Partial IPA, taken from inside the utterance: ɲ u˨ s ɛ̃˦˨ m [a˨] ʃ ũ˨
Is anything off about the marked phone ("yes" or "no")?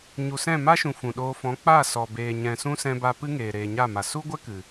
yes